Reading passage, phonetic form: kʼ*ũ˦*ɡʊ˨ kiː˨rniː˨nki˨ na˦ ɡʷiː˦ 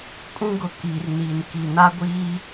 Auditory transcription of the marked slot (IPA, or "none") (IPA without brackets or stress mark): ũ˦